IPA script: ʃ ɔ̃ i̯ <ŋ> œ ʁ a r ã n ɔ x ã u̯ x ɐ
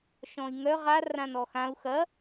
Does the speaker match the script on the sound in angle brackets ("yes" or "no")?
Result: yes